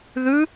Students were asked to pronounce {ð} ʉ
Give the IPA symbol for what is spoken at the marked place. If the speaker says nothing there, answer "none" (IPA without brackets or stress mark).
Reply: ð